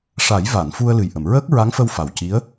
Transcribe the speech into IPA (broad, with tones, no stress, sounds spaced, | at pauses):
ʂ a˨˩˦ j v a˨˩˨ n f u˧ ə̯ l ɨ˨˩ j ʔ ə˨˩˨ m ɹ əː˦˥ k̚ ɹ a˧˥ ŋ f ə˧ w f a˨˩ w c i˧˥ ə̯